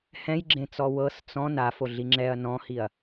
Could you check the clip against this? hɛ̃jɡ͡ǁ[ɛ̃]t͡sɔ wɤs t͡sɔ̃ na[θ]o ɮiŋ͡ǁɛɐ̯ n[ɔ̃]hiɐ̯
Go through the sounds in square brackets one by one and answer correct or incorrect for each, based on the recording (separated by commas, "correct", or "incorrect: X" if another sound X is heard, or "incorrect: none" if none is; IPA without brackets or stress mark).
incorrect: ẽ, incorrect: f, correct